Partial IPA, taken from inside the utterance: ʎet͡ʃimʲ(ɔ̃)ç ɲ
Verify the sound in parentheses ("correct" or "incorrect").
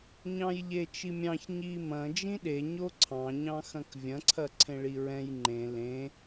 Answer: incorrect